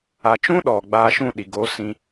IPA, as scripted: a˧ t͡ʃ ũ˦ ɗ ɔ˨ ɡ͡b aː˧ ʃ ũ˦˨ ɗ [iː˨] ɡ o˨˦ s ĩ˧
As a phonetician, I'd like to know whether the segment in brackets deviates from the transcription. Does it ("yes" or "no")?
yes